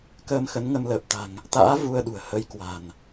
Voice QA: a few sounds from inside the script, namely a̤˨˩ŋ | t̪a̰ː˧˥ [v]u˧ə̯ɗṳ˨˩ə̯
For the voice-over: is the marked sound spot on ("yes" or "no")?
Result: yes